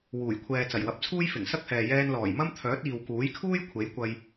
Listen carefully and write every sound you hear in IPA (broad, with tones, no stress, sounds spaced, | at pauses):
w uː˨˩ j kʷʰ ɛː˨ t͡s ɐ˨˩ j w ɐ˨˥ p̚ t͡sʰ uː˥ j f ɪ˨˩ ŋ s ɐ˥ k̚ h ɛː˨ j ɛː˧ n l ɔː˨˩ j m ɐ˥ m t̪ʰ œː˨˥ t̚ iː˨ w k uː˨˥ j kʰ uː˥ j kʷʰ e˨˥ j kʷ ɐ˧ j